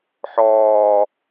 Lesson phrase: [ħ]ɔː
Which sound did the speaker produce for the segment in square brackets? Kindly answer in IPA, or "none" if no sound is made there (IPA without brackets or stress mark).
ħ